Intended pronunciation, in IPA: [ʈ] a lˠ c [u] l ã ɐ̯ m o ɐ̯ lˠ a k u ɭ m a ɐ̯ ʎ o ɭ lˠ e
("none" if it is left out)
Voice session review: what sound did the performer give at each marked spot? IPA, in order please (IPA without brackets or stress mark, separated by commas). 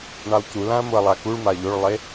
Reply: ɳ, u